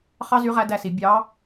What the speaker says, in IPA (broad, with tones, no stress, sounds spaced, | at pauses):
χ ɑ˥ z y˧˥ ʁ æ˧˥ d æ˧ s i˩˧ bʲ ɑ˧˥